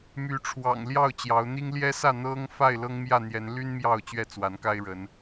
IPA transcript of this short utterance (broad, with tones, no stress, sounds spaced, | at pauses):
m y˨˦ ʈ͡ʂʰ w ɑ̰˨˩ ŋ l j ɑ˥˨ ʊ̯ t͡ɕ j ɑ˨˦ ʊ̯ n̪ i˦ ŋ l j ɛ˦ s ä˥˨ n̪ ɤ˦ ŋ f a˥˨ ɪ̯ l ɤ˦ ŋ m j ä˥˨ n̪ j ɛ˨˦ n l y˦ n m j ɑ˥˨ ʊ̯ t͡ɕ ɥ ɛ˥˨ t͡s w a˨˦ n k a˦ ɪ̯ ɻ ə˨˦ n